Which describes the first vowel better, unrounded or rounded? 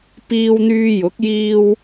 unrounded